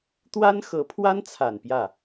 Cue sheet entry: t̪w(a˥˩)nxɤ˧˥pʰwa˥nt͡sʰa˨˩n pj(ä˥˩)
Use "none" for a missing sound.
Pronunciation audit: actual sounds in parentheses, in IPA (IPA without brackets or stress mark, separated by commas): a˥, ä˥˩